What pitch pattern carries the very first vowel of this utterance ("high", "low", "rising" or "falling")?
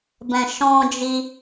low